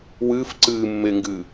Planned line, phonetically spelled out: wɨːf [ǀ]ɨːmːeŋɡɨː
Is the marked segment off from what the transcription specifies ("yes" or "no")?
no